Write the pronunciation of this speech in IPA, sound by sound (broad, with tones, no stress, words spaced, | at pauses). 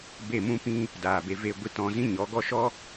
be˦˨mũ˦pĩ˦ | daː˨be˧ve˦˨ ɡʷi˧t ɔ̃˧ zĩ˦ ɲɔ˨˦ɡɔ˦ ʃɔ˦